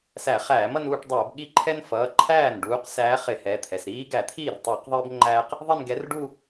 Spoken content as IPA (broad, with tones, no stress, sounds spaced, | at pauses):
s æ˧˩˧ χ æː˧˩˧ m ʌ˥˧ n uː˥˧ ʈ dˤ ʌː˧˩˧ b ɠ i˥˧ ǃʰ ɛ˥ n f ʌː˩˧˩ ǃʰ æː˥˩ n ɖ uː˧˥ q s æː˧˥ χ ɪ˧˩˧ h ɛ˩˧˩ t̪ʰ ɛ˩˧˩ s ɾ iː˥ ɡ æ˧˩˧ t̪ʰ iː˥˩ r tˤ uː˧˩˧ q ðˤ ɪː˥ b ŋ͡ǃ æː˥ q | ðˤ i˥˧ n ɡ ɛ˧˥ r ɖ u˥˧